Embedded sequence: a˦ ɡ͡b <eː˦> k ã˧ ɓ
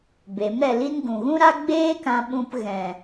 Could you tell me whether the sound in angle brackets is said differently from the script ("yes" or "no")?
no